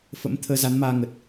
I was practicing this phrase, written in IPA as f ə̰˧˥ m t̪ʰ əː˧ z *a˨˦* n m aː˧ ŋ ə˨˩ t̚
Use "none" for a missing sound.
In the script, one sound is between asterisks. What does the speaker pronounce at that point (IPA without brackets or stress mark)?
a˨˦